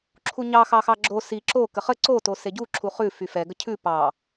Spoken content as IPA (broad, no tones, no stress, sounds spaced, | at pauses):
ǁʰ u ɲ ɑ x ɑ x ɑ ɡ͡ǁ o s i ǁ o k ə χ ə ǀ o t o s e ɟ u ǁʰ u χ ʉ f y f ɛ ɡ ə cʰ ʉ p ɑ